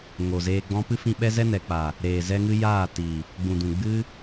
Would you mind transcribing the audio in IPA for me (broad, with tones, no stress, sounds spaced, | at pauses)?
ŋ o˨ z eː˧ ɡ͡b ɔ̃˦ p ɨ˦ f ĩ˧ ɓ ɛ˦ z ɛ˦ n ɛ˨ k͡p a˨ | ɾ eː˨ z ɛ˧ ŋ ɨ˧ j aː˦˨ t i˨ | ɡ͡b ũ˨ d ũ˨ ɡ͡b ɨ˦